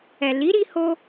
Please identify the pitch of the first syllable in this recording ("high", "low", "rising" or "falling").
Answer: low